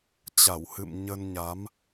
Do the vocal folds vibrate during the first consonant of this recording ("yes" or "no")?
no